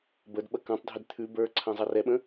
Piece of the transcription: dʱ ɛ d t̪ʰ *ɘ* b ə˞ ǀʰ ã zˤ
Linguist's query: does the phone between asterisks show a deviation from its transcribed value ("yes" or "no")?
yes